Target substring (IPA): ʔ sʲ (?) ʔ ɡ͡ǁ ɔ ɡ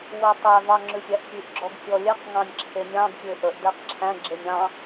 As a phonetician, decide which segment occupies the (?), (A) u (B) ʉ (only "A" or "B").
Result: B